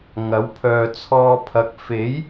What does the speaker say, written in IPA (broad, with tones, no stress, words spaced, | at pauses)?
ŋɐ˨˥wpʰœː˨t͡sʰɔː˧pʰɐ˨˥k̚ fe˨˥j